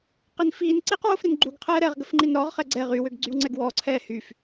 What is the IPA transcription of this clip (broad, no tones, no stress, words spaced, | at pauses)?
qinfiːnǀiːq wofɾinɡ͡ǃuɡqʰɛː ɾɛʁɡəf ŋ͡ǃinɾɔʁχɛ ɡ͡ǀɛ ʁywøɡ ɡ͡ǀywŋ͡ǀɛɡwɔǀʰɛː hyf